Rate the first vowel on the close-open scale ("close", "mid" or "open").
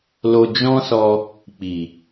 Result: mid